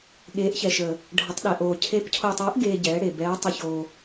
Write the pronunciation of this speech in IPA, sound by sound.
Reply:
ɠ eː˨˦ ʔ ç ɛ˨ ʃ əː˨ | ɖʱ ə˨˦ tˤ ɗ ɛ˨ ʔ oː˨ cʰ e˨˦ p cʰ oː˨ tˤ œː˨˦ ʔ ɡ eː˨ ɟ ɛː˨˦ ɽ e˨ b ɛː˨˦ tˤ ə˨ ç oː˨

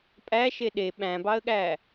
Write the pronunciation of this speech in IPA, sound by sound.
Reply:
pʼ æ ʃ e ɗ e ɓ æ̃ b ɑ ə̯ ɠ æ

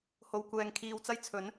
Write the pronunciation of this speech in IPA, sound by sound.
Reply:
h o˧ w kʷ ɛː˧ ŋ kʰ iː˧ w t͡s ɐ˥ j t͡sʰ ɵ˨˥ n

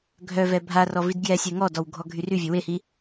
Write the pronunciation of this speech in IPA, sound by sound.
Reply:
ɡʱ œ v ɛ bʱ a r ɔ v i d ɡ j ɛ sʲ ɛ ŋ ɔ d ɔ w ɡʱ ɔ ɡʱ y r y vʲ ø w e h i

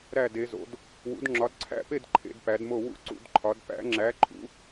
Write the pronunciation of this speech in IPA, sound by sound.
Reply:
ɾ æ˥˧ d e˨˦ z o̰˨˦ d | w ṵ˨˦ d ŋ͡ǁ ɒ˨˦ d ǀʰ æ̰˥˧ p e˥˧ d ǃʰ ḛ˨˦ d p æ˨˦ d m o˥˧ w ṵ˥˧ ǀ ṵ˨˦ d ǃʰ ɒ˨˦ d p æ̰˨˦ ŋ͡ǁ æ˨˦ ǃʰ ṵ˨˦

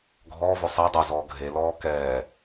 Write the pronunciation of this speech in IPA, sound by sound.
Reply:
ɡʱ ɔː v o sˤ ɛ dˤ o z ɔː ɡʱ e l ɔː k ɛː

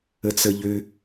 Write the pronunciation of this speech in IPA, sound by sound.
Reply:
ə t͡s ə ʎ ø

